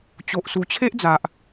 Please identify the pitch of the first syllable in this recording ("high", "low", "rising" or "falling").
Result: low